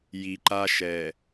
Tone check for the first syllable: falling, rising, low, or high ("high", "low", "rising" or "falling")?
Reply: low